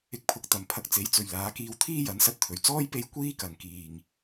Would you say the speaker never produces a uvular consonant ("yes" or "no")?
yes